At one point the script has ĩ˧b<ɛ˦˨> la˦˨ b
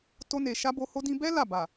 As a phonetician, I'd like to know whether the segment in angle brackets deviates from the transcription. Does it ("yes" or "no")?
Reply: yes